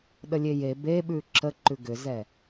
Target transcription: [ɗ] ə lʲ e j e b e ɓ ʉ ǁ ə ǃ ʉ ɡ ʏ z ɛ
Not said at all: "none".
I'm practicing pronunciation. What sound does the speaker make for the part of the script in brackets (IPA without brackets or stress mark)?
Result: ɗ